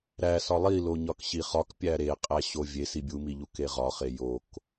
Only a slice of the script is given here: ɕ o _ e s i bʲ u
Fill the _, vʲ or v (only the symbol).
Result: vʲ